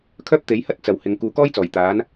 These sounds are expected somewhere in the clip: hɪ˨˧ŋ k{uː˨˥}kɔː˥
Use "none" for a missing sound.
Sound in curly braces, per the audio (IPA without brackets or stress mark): uː˨˧